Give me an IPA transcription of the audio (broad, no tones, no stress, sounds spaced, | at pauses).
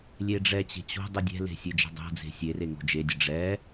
lʲ e ɖ͡ʐ ɛ t͡ɕ e̤ t͡ɕ o̤ dˤ u dʲ ɛ̤ l e̤ sʲ e d͡ʒ ɛ̤ dˤ o̤ d͡z e̤ sʲ e r e ŋ o̤ d͡ʒ e dʲ ə ɖ͡ʐ ɛ